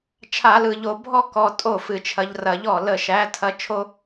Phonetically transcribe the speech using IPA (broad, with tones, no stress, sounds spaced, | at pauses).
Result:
t͡ʃʰ a˧˩˧ l ɯ˨˩ ʎ o˧˩˧ bʱ ɔ˥ k ɔ˧ tʼ o˥˩ f ɨ˧˩˧ t͡ʃʰ ɐ˧ ʎ r ɐ˧˩˧ ʎ ɔ˥˩ l ə˥˩ ʃ æ˧˥ tʰ ɐ˥ t͡ʃʰ o˥